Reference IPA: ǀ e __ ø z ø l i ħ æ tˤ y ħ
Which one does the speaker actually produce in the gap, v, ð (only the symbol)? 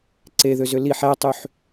ð